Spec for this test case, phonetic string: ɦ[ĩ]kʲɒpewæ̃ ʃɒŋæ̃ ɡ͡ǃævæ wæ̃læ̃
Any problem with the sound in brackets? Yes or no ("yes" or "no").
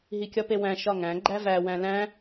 yes